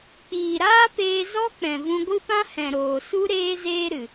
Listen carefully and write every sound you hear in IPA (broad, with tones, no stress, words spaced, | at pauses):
k͡piː˨ɾaː˦peː˧zɔ˦ k͡pɛ̃˨vũ˧ɡʷɨ˦pã˦ hɛ̃˨ɾoː˨ su˦ ɾeː˦zeː˦ɾɨ˨